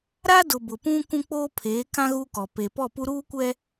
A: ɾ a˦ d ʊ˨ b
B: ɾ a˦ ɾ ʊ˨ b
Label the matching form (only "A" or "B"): A